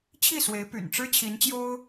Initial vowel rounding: unrounded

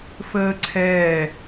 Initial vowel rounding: unrounded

